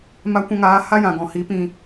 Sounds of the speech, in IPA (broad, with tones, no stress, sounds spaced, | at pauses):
m a˧ kʷ ã˧ ŋ aː˨˦ h a˦ j ã˨ ɡ ɔ̃˨ h i˨˦ p ĩ˧